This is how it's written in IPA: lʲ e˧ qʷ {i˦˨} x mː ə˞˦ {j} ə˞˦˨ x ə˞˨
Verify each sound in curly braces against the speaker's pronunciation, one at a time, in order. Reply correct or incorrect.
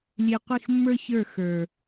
correct, incorrect

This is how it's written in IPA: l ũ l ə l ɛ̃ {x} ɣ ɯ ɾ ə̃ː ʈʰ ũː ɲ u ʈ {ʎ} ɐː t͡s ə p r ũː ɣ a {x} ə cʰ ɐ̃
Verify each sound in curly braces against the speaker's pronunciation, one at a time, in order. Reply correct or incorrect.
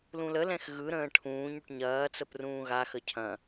correct, incorrect, correct

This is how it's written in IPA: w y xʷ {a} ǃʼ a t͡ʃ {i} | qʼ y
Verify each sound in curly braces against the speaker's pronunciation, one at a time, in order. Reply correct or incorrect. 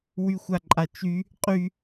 correct, incorrect

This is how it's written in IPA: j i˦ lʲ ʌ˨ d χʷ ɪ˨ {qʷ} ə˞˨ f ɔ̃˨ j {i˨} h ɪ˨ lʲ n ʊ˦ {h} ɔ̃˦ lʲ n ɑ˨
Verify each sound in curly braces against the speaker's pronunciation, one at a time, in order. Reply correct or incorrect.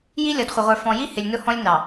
incorrect, incorrect, correct

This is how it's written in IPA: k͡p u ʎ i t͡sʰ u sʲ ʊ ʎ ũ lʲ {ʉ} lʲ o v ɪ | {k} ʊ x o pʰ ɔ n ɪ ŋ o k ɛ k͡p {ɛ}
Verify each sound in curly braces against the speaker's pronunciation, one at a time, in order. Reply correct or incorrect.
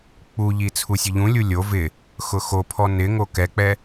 incorrect, incorrect, correct

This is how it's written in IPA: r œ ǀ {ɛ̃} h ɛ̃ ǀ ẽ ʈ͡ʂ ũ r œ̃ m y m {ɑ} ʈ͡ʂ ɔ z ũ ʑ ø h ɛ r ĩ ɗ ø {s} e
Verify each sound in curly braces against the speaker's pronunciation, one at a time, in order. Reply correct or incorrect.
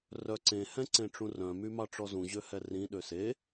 incorrect, correct, correct

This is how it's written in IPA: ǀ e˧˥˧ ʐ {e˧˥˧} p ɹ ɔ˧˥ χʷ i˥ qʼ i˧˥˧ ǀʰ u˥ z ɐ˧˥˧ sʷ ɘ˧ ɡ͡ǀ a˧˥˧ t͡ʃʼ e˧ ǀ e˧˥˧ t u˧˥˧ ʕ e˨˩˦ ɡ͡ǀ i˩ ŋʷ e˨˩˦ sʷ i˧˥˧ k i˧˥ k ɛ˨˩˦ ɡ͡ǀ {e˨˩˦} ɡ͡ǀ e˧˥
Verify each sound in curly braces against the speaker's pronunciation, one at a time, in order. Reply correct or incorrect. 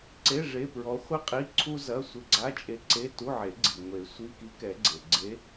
correct, incorrect

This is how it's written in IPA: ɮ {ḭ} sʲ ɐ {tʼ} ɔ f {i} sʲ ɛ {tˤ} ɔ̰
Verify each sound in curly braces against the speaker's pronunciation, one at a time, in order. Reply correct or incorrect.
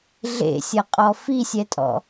incorrect, incorrect, correct, incorrect

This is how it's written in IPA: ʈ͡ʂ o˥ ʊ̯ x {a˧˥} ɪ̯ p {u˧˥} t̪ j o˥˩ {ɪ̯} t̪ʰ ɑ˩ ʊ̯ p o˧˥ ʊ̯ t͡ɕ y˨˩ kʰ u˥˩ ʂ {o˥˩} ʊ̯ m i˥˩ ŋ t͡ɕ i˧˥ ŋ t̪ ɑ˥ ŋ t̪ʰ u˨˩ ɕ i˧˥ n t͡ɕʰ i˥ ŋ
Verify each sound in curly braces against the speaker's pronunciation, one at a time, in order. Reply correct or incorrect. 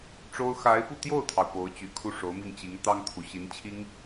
correct, incorrect, incorrect, incorrect

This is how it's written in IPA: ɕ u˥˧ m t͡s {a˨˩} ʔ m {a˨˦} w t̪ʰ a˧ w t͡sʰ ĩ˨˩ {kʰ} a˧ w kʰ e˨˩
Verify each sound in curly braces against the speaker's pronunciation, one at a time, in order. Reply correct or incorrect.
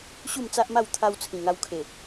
incorrect, incorrect, incorrect

